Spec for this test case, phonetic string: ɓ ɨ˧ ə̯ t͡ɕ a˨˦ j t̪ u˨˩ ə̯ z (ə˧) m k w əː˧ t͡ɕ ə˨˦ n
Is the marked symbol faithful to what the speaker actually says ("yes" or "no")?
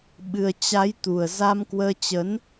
no